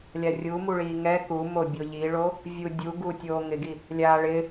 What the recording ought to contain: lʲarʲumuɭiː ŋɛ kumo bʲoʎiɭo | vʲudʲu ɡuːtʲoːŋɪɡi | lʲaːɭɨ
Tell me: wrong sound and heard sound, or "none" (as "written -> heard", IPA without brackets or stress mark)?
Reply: ɨ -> ɪ